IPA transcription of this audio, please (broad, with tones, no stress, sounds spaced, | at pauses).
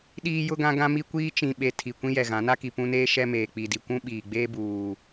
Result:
ɗ iː˦ j ʊ˦ ɡ ã˦ ɡ ã˦ m i˦ kʷ iː˦ t͡ʃ ĩ˨ ɓ e˨ tʰ i˨ kʷ ĩ˦ j ɛ˨ ɣ ã˨˦ n a˦ k i˨ p ũ˦ n eː˦ ʃ ɛ˦ m eː˨ k͡p i˨ d i˨ kʷ ũ˦ ɓ iː˨ ɡ͡b eː˦ b uː˨